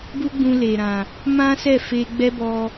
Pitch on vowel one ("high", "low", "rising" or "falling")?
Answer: high